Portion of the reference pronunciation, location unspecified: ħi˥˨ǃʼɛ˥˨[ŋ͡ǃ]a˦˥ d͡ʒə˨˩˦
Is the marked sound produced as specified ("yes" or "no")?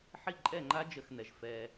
yes